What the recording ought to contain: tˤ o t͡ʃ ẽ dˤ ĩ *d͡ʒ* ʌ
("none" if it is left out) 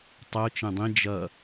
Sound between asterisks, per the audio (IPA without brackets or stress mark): d͡ʒ